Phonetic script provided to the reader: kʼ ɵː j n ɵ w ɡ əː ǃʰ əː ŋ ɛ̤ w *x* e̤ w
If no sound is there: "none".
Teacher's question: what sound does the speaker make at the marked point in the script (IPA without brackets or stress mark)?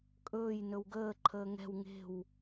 ŋ